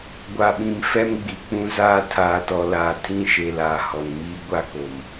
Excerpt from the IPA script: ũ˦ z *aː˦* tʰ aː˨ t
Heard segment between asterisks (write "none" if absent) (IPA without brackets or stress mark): aː˦